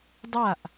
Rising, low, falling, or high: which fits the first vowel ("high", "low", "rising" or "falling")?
falling